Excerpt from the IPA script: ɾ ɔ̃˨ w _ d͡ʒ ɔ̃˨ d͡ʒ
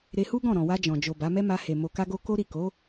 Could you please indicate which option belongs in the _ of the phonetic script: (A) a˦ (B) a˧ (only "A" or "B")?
B